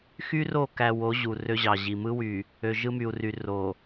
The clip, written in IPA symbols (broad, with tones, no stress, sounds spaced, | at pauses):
x y˦ r o˦˨ k æ˨ w o˨˦ ʑ u˨ r ø˦ ʑ ɑ˨ ʑ i˨ m ɯ˦ w y˨ | ø˨ ʒ ɯ˦ m y˨ u̯ r y˨ r o˨